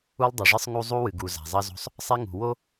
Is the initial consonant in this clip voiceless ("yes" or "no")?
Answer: no